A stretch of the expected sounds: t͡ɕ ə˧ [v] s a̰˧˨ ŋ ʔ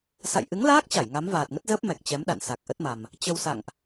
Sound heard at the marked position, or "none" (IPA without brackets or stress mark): w